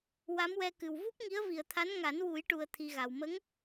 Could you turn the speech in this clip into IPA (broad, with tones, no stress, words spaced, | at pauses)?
wa˧˥mwɛ˧kɨ˨˩w vu˦˥p̚ŋi˧˥ə̯vi˨˩ə̯t̪ʰa˧˥n ŋa˨˩˦nwu˨˩˦jʈu˨˩ə̯ t̪ʰi˧ɣa˨˩w mə˧˥ŋ